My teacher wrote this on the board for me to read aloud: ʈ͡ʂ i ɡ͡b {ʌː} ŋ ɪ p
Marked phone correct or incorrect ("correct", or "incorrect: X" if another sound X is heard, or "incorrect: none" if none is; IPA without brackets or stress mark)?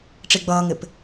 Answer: correct